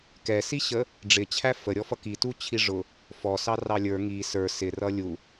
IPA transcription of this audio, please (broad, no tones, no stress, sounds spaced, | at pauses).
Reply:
k ɛ s i ɕ ə | ɖ͡ʐ ɪ t͡ɕʰ æ f ə ɾʲ ɔ f ʌ k i t u t͡ɕʰ i ʐ ʊ | f ɔ s ɑ r ɑ lʲ ə˞ ŋ i s ə˞ s ɪ r ʌ lʲ u